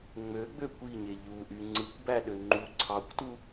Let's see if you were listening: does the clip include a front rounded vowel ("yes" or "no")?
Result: yes